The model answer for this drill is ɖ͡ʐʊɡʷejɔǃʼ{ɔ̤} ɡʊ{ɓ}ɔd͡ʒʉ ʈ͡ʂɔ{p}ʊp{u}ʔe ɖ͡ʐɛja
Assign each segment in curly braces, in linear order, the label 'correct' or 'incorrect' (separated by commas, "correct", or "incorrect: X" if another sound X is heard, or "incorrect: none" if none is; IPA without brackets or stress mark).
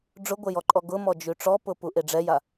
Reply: incorrect: ɔ, incorrect: m, correct, correct